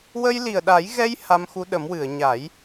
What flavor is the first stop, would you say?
implosive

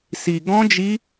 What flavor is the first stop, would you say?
plain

